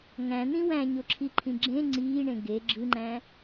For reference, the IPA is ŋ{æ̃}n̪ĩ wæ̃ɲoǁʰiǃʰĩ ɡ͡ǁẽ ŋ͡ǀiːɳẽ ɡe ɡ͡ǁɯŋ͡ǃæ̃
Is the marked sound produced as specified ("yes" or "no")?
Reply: yes